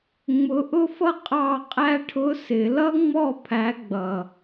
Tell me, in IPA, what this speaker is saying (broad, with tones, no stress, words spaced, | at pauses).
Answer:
ŋ͡mʊ˧˥ʔʊ˥fʌ˥ qʼɑ˥˧qʼæ˥ ʈʰʊ˧˥sɪ˨˩˦lʌ˥ŋ͡mɔ˥˧ pʰæ˧˥ɡ͡bʌ˨